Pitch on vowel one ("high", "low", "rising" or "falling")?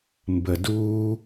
low